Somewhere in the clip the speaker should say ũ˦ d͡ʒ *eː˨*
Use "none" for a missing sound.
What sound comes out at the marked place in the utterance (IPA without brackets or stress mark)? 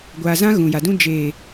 eː˨